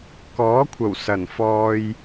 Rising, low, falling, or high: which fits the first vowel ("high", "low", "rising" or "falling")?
rising